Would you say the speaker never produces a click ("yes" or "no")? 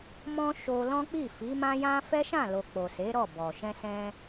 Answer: yes